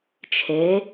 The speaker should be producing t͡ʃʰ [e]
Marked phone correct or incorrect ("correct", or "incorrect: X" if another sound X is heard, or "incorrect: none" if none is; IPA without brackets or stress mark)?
correct